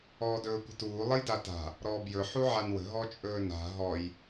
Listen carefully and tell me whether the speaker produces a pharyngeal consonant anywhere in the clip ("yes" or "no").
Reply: yes